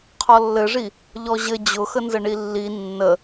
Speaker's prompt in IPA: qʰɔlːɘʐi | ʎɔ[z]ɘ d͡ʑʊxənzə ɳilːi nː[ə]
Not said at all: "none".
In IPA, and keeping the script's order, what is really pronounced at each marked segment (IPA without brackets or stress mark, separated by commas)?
ʑ, ə